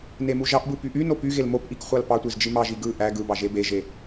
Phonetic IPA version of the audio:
n e m u ʒ ɑ ʔ b ɯ p y ʔ y n o p y ɣ e l m o p ʔ i k χʷ ɑ l p ɑ tʷ i z d͡ʒ i m ɑ ʒ i ɡ ɯ ʔ æ ɡ ɯ b ɑ ʒ e b e ʒ e

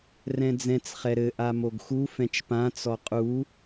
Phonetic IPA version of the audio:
r ɛ̃ d͡z ɛ̃ t͡s χ ɛ ɾ ɘ ʔ a m o ɡ x u f ɛ̃ t͡ʃ p ã t͡s ɔ qʼ u

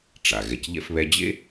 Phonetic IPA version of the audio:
ʈ͡ʂ a˩ ɣ ɛ˨ c ʎ ɛ̰˥ f β ɛ˦ d͡ʑ ḛ˥

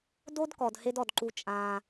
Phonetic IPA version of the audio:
d o˥ d k ɔ˩ d h e˥ d ɔ˩ d ǃ u˧ t͡ʃʼ ãː˧

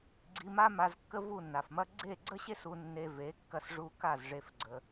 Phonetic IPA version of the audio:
ɡ͡ǀ i˧ m a˥ m a˧ z kː ə˥ v u˥˩ nː a˩ f m ɐ˥ ɡ͡ǀ e˥˩ ɡ͡ǀ ə˥ ɕ e˥ s u˧ nː e˧ v e˩˥ kː ɐ˧ s ʐ u˧ k a˥˩ z ʐ e˧ f ɡ͡ǀ ə˧

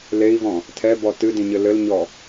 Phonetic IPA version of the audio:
l e i̯ v ɔ̃ | tʰ ɛ b ɔ t ɨ d ĩ ɲ ɘ l ɘ l ɲ ɔ

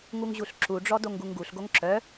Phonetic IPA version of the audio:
ŋ u ŋ ʑ u ɬ ǁ u ɖ͡ʐ ɔ d o ŋ ɡ u ŋ ɡ u ɬ ɡ o ŋ ǁ œ

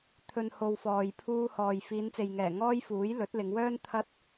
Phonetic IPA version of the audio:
t̪ʰ ɵ˨ n h o˨ w f ɔː˨ j pʰ uː˧ h ɔː˨ j f iː˨˧ n t͡s e˨ j ŋ ɛː˨˩ ŋ ɔː˥ j f uː˨˥ j l ɵ˨˥ t̚ l ɪ˨˧ ŋ w œː˥ n t̪ʰ ɐ˥ t̚

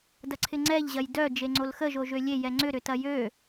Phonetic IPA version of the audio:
d ɐ ǀʰ ɪ ŋ͡ǀ ɛ ʎ ʑ ɐ j d œ d͡ʒ e ŋ͡ǀ o l x ə ʒ o ʒ ø lʲ e j ɛ ŋ͡ǀ ʏ ɾ ʏ t ɐ j ø

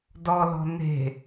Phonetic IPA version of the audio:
d ɔ l ɔ̤ n e̤

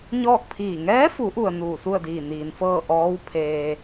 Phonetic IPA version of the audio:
ɲ ɔː˥˨ k̚ pʰ iː˧˩ ŋ ɛː˧˥ f u˩˧ ʔ u˩ ə̯ n uː˧˩ s u˥˨ ə̯ d iː˧˩ n iː˩ n f ɤː˥˨ ʔ ɔː˧˥ w pʰ eː˧

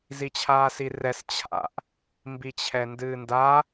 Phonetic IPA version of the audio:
z i t͡ɕʰ aː s i r ɛ s t͡ɕʰ a̰ ʔ | m b i t͡ɕʰ ɛ n d ɨː n d a

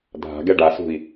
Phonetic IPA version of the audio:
dʱ a̤ ɡ ɛ ɖ a s ṳ i̯

